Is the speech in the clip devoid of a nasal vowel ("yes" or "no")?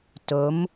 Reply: yes